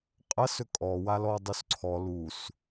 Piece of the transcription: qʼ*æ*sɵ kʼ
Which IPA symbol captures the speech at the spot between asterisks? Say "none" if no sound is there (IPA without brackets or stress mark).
ɐ